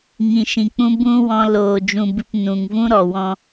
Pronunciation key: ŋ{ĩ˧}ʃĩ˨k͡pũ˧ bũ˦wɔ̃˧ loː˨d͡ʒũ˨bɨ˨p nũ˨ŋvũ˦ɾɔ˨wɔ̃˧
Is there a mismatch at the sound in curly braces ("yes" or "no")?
yes